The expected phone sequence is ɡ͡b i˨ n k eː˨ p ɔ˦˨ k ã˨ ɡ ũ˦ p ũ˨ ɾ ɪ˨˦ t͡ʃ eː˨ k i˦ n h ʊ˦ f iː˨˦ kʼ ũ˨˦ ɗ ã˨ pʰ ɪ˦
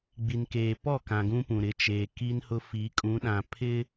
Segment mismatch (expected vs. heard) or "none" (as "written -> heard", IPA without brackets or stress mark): iː˨˦ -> i˨˦